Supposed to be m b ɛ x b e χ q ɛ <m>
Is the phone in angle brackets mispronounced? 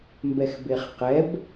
yes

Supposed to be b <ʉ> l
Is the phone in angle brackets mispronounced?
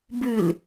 no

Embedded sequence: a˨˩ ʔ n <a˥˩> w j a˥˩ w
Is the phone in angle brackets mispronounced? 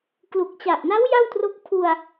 yes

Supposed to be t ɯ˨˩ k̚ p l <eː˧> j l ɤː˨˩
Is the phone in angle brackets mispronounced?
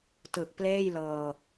yes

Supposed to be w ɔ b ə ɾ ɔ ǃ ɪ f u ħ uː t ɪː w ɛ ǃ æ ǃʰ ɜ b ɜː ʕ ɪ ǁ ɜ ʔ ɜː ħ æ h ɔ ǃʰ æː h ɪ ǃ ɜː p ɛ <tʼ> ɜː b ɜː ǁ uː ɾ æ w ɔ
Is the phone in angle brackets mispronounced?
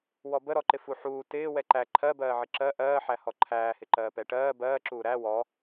yes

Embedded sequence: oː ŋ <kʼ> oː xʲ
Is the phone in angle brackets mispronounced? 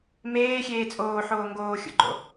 yes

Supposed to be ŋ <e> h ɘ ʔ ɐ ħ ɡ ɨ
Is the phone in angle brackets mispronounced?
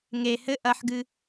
no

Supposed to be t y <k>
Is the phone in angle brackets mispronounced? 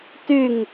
yes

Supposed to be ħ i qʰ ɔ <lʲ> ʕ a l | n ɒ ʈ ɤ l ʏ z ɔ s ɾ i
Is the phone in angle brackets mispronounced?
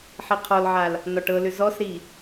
yes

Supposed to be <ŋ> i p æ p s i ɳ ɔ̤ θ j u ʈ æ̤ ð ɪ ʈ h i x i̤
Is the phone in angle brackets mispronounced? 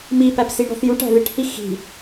yes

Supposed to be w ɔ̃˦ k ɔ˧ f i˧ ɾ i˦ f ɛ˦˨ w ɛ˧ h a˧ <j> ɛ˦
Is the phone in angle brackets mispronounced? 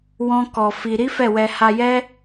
no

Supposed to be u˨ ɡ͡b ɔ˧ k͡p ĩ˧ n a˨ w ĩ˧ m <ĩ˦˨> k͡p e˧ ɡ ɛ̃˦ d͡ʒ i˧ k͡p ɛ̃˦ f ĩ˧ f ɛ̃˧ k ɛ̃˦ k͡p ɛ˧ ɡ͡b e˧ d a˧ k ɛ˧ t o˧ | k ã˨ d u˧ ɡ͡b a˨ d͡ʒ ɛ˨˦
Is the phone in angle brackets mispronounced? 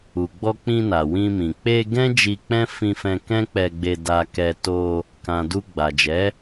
yes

